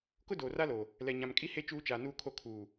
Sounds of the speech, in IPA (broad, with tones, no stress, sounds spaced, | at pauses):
k ʊ˦ d oː˨ r a˦ l o˨ | l ɛ˨ ɲ ã˨ m kʼ i˦ h e˦ t͡ʃ uː˦ t͡ʃ aː˨ n uː˦ kʰ o˦ kʰ uː˨